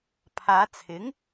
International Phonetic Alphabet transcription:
pʰ aː˨˧ t͡sʰ ɪ˨˥ ŋ

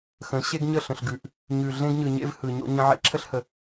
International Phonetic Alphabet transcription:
x ə̃˨˦ ɕ e˦ ɡ ɲ ə˦˨ ɬ ə̃˨ ɬ ɡ ʉ˨ ʔ | ɲ ʉ˨ ɮ ẽ˦ ɡ ɲ ɯ˨ ɲ ḛ˦ v h ɯ˨ ɲ o̰˦ ɲ ə̃˦ ʕ ḛ˦ ǁʰ ə˦ ɬ h ə˨

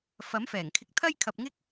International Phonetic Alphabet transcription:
f ɐ˨˥ m f ɛː˨˩ ŋ kʰ ɪ˧ k̚ t̪ʰ ɐ˥ j kʰ ɐ˧ p̚ ŋ ɪ˥ k̚

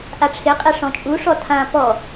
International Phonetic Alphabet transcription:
ʔ a ʈ͡ʂʰ ɪ qʼ e ʂ ɔ̃ t͡ʃʼ u ʂ ɔ tʰ ã p ɔ

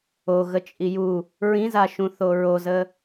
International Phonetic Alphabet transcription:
o ɣ ə t͡ʃʼ i j u | ɹ ĩ z a ʃ ũ θ o ɹ o z ə

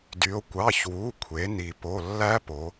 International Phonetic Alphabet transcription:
d y˩˧ o̯ kʷ ɑ˩˧˩ ç w u˩˧˩ kʷʰ e˩˧ n i˩ p o˩˧˩ lː æ˦˥ p o˩˧

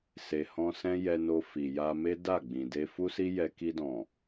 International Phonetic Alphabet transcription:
s e˨ h ɔ̃˧ s ɛ̃˦ j ɛ˧ n o˧ f i˨ j a˧ m e˦ d a˦˨ ɡ͡b ĩ˨ d e˧ f u˦ s i˦ j ɛ˧ k i˧ d ɔ̃˨

